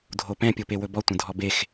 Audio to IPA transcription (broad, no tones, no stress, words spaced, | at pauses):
dʱopɛ̃ pʲopewɵbɔ tʷə̃dʱɔbex